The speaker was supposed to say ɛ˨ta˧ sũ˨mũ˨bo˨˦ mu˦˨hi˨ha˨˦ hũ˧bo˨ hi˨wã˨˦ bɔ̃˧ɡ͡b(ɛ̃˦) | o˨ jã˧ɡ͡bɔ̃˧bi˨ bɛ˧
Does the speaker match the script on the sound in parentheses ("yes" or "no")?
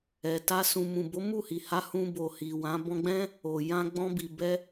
yes